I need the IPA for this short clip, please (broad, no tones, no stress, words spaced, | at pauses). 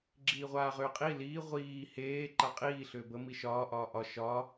ɡ͡ǁiːʁʷaːʁʏːqʼi liː ʁʷiː heː ǃaqʼiː ɬʏːbə miʃɒː ʔɒːʔɒ ʃɒ